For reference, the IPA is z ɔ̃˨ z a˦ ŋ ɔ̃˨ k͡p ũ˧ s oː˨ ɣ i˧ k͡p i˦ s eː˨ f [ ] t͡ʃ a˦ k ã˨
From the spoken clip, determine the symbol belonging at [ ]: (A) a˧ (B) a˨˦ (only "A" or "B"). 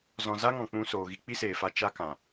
A